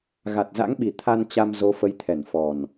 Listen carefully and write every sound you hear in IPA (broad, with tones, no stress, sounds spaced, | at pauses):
ɣ a˨˩ t̚ z a̰˧˥ ŋ ɓ i˨˩ t̪ʰ a˧ n t͡ɕ a˧ m z o˨˦ f ə˨˦ j t̪ʰ ɛ˧˩ n f ɔ˨˩ n